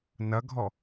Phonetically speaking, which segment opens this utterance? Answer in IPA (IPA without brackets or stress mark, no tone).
n